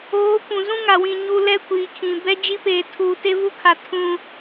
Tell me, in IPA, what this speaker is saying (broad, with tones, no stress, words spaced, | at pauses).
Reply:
oː˨˦ kʷũ˨zũ˦ŋa˨wĩ˨ ɲu˨ lɛ˦ kʷiː˨kʰĩ˨ bɛ˦d͡ʒi˦peː˨ tʰuː˨te˦vu˦kʰa˨ tʰũ˦